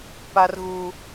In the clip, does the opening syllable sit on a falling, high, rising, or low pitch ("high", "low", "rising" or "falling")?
high